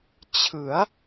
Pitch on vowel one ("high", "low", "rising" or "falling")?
rising